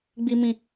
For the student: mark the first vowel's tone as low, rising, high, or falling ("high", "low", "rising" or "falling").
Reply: high